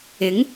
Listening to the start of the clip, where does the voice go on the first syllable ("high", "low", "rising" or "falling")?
rising